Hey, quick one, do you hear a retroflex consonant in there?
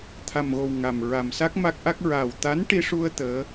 yes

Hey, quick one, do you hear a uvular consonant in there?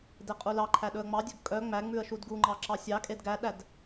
yes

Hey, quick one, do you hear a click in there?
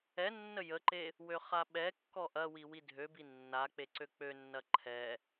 yes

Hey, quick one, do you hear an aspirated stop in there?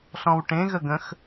no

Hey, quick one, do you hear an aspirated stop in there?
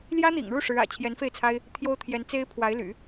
yes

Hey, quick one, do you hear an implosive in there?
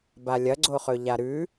no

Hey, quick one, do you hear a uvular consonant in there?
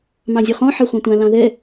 yes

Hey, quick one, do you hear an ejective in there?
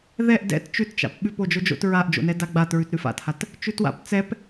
no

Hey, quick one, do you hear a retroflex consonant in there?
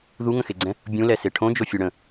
yes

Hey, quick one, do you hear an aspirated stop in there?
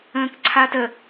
yes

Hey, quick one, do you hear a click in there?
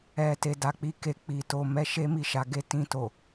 no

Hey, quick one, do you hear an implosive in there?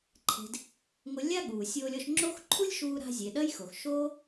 yes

